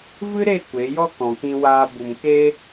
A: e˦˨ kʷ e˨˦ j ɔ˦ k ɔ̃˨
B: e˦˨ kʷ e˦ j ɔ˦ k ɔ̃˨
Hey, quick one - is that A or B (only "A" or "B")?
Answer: A